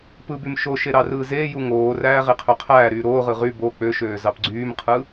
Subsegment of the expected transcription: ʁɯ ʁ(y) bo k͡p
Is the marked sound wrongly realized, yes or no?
no